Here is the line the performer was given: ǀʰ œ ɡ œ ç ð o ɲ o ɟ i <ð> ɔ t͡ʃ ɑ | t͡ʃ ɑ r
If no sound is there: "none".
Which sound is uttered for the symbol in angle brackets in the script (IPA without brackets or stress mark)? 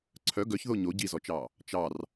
z